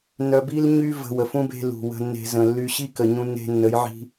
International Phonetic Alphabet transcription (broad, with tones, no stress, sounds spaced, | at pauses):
n œ˧ b i˦ l ɲ y˦ v ə̤˧ w ə˨ f ũ˦ b e̤˦ l ṳ˨ w ə̤˧ nː e̤˧ z ə̃˨ lː y˧ ɕ i˦ k ə˨ ɲ ũ˧ nː e̤˧ nː ə˨˦ j ʕ i̤˧